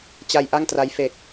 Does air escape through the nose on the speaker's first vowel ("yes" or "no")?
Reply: no